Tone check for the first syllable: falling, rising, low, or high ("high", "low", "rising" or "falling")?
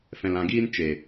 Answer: low